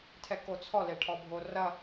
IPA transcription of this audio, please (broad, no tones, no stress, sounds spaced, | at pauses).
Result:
tʰ ɛ k o t͡sʰ ɔ l e ʈʰ ɔ bʱ o r ɐ